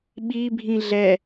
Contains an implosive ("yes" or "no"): yes